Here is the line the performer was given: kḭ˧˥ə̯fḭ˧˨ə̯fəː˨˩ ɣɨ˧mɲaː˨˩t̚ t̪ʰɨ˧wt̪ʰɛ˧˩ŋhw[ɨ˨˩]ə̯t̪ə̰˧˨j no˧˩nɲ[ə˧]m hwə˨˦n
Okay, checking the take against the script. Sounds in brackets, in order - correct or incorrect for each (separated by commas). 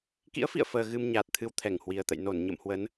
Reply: incorrect, incorrect